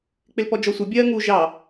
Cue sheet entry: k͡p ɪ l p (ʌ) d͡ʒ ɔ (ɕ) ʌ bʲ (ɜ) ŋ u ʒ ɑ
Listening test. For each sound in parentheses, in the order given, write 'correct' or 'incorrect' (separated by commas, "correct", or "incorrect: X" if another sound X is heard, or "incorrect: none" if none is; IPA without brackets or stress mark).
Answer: incorrect: ɔ, incorrect: sʷ, correct